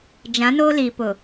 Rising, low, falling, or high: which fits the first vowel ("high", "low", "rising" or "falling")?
rising